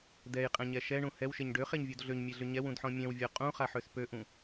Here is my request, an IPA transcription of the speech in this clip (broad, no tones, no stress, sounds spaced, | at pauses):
d ɛ j qʼ ɛ̃ ɲ ɛ ʃ ɛ ɳ ũ h ɛ w ʃ e ɲ ɖ ø χ e ɲ vʲ u d ɮ ø ɲ mʲ e ɮ ʏ ɲ ɛ w ũ d ħ ɔ̃ mʲ ɛ̃ w vʲ ɔ qʼ ũ χ a ħ ø s p ø ʔ ũ